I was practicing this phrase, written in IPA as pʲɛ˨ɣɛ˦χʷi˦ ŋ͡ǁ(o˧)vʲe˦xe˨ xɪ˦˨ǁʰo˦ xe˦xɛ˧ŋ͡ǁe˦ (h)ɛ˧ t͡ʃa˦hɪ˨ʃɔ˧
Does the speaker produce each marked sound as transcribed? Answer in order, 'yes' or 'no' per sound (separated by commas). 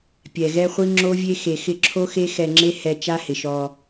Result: no, yes